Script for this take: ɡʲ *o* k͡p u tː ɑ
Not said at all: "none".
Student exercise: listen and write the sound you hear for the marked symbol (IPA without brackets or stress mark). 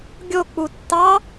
o